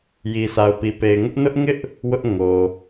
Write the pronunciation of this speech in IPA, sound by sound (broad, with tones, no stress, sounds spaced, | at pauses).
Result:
j i˨ s a˨ ʊ̯ p i˨ p e˨ ɪ̯ ŋ ʊ˦ ʔ n ʊ˦ ʔ ŋ ɪ˦ ʔ | w ʊ˦ ʔ ŋ o˨